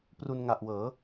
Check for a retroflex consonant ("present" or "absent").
absent